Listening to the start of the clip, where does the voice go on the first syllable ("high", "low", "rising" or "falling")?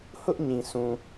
high